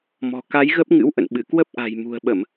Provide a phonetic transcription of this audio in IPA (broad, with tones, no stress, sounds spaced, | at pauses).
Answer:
m ɔ̤˨˩ k a˨˦ j ɣ ə˦˥ p̚ ŋ ɨ̰˧˥ w ʔ ə̰˧˨ n ɓ ɨ˧˩ k w ə˦˥ p̚ ʔ a̤˨˩ j m ṳ˨˩ ə̯ ɓ ə˧˩˨ m